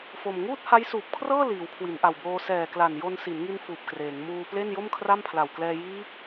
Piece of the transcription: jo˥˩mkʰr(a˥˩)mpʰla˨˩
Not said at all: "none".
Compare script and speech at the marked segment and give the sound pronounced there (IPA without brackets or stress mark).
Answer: a˥˩